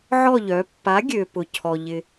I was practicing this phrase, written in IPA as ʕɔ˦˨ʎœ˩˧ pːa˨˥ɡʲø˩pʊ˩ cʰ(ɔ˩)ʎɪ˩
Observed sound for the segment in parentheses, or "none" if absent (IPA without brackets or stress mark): ɔ˩